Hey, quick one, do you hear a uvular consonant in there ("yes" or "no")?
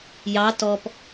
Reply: no